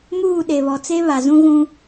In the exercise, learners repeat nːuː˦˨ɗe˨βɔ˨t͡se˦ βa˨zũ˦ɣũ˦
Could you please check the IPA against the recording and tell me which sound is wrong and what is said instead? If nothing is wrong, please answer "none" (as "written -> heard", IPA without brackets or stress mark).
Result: nː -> m